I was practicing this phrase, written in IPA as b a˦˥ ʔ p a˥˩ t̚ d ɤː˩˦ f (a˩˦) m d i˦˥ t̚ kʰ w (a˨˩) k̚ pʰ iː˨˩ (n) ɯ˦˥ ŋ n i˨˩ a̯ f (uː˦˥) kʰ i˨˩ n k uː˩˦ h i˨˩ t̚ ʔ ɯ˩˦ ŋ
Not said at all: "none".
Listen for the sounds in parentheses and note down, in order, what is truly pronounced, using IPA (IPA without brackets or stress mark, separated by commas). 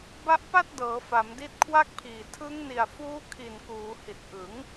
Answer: a˩˦, a˥˩, tʰ, uː˦˥